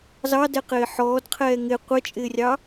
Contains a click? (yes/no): no